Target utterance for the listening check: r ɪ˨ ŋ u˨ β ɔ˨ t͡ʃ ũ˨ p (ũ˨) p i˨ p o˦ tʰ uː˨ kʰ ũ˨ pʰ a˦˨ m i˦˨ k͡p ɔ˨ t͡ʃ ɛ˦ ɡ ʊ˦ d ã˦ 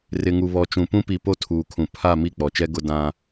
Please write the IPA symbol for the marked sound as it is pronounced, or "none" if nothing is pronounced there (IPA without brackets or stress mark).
ũ˦